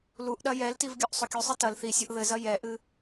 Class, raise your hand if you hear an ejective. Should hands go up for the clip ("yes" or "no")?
no